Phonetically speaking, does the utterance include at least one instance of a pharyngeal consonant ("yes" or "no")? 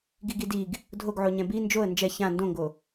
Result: yes